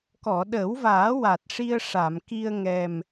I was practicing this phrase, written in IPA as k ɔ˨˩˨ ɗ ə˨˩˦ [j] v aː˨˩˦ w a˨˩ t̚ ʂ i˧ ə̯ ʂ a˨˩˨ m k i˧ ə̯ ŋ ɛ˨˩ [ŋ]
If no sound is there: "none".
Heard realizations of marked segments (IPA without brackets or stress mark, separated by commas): w, m